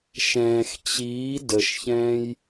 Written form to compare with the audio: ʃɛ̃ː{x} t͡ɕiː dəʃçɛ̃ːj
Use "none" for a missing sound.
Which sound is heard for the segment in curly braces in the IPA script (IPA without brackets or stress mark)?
x